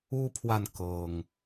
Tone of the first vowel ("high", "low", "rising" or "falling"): high